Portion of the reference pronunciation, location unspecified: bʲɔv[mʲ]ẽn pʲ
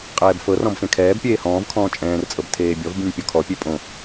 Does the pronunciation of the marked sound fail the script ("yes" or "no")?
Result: yes